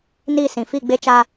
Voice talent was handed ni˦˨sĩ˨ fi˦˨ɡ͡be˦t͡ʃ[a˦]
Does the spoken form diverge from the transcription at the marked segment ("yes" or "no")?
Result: no